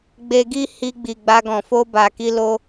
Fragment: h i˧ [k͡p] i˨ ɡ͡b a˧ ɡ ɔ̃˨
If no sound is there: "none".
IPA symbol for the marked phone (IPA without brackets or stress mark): ɡ͡b